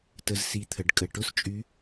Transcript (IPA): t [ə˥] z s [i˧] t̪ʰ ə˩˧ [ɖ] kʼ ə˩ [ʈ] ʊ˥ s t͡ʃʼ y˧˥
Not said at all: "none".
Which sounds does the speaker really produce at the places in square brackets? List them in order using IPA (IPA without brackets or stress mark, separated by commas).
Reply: ə˧, i˧, ɖ, ʈ